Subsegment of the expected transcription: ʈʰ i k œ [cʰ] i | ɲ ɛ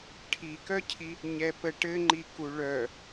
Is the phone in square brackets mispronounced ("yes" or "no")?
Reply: no